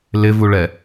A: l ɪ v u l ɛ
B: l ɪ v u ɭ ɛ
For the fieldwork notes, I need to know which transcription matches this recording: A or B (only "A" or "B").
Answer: B